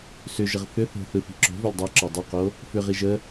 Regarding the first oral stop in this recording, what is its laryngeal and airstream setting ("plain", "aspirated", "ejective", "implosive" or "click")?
click